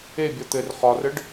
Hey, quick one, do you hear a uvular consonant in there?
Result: yes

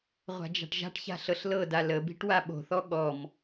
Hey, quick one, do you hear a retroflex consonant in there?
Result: yes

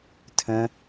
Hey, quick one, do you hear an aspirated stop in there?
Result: yes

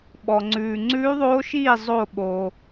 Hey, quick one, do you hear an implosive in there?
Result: yes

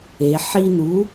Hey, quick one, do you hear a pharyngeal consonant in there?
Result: yes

